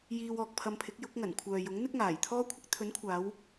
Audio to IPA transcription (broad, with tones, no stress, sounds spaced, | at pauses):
j iː˧ w ɔː˨ k̚ pʰ ɐ˧ m pʰ ɪ˨˥ k̚ j ʊ˨˥ k̚ ŋ ɐ˨˩ n kʷʰ œː˨ j ʊ˨˥ ŋ n̪ ɪ˥ k̚ ŋ aː˨˩ j t̪ʰ ɔː˥ kʷʰ ɪ˧ k̚ t̪ʰ ɵ˨˥ n kʷʰ aː˨˧ w